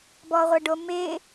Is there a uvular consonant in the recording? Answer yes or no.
yes